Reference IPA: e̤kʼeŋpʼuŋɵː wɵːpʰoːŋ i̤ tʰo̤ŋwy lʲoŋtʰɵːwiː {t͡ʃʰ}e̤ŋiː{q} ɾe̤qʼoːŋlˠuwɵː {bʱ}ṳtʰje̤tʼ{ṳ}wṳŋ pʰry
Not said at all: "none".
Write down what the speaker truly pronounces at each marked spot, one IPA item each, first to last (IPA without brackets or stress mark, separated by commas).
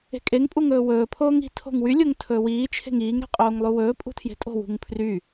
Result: t͡ʃʰ, ŋ, pʼ, o̤